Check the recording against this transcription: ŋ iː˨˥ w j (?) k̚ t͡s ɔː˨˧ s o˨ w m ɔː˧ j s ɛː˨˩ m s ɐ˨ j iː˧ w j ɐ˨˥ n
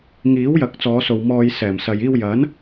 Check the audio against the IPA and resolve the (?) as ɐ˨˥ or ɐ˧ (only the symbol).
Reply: ɐ˨˥